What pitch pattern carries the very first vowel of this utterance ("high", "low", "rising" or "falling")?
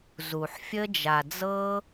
low